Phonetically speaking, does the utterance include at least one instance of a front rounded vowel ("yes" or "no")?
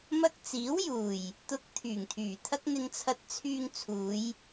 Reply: yes